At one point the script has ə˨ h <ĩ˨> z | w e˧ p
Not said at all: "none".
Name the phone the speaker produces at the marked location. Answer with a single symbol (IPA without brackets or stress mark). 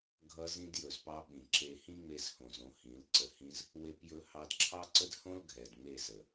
ĩ˧